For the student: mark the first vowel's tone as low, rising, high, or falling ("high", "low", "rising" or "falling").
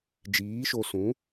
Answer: rising